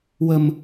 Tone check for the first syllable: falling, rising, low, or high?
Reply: low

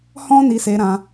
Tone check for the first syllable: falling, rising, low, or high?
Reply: high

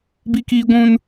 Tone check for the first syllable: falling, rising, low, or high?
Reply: high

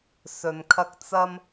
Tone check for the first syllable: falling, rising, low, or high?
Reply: low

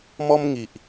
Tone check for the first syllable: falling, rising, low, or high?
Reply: high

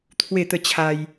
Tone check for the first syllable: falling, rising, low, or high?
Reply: falling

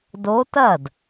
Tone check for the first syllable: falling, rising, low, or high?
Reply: rising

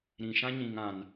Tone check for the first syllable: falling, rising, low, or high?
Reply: low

